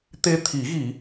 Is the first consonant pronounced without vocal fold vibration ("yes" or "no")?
yes